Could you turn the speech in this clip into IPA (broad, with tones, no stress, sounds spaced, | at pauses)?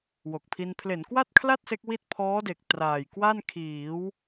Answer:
w o˨˩ k̚ pʰ i˧ n pʰ l e˩˦ n k w a˥˩ t̚ kʰ l a˥˩ t̚ s e˦˥ k̚ w i˥˩ t̚ pʰ ɔː˦˥ d e˨˩ k̚ t r aː˨˩ j k w a˥˩ n kʰ iː˩˦ w